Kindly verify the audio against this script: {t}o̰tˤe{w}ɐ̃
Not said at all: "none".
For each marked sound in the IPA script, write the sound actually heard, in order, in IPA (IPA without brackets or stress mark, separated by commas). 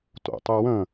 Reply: t, w